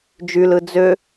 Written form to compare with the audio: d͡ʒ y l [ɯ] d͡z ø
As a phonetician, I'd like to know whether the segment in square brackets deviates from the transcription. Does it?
no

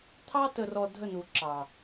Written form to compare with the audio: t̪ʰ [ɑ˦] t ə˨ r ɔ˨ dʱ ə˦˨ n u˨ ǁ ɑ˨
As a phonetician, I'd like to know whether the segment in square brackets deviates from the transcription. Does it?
no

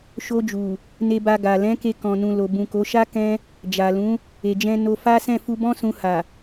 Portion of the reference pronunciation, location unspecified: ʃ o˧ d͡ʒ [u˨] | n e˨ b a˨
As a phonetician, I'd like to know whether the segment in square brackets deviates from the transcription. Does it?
no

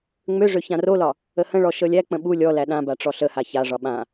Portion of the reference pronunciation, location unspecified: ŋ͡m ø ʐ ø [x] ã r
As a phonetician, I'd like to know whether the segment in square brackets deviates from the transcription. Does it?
yes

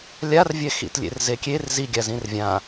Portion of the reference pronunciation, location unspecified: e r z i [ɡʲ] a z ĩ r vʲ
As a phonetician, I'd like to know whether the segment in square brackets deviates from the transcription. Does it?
no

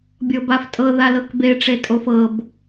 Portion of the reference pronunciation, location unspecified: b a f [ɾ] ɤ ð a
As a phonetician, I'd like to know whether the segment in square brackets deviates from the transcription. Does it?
yes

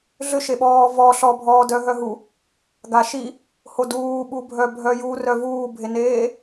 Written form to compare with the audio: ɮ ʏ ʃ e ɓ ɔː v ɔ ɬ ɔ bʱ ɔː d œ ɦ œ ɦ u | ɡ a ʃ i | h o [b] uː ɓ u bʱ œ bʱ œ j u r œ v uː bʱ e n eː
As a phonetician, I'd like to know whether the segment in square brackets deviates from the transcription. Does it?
yes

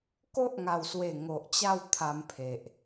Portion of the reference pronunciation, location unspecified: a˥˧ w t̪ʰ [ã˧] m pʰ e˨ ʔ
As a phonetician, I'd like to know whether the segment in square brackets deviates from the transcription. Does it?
yes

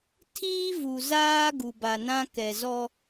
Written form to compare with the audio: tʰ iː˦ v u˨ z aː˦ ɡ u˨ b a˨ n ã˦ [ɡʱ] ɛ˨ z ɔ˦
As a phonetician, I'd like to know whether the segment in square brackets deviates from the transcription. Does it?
yes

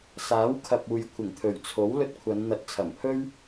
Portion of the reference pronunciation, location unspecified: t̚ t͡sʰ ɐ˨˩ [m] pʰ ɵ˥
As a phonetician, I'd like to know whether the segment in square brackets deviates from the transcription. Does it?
no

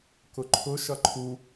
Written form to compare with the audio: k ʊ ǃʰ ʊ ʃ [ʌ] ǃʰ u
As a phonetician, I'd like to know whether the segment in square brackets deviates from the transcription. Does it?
no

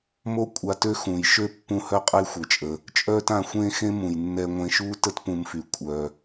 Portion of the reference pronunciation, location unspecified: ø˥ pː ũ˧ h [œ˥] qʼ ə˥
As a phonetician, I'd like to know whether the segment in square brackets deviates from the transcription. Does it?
no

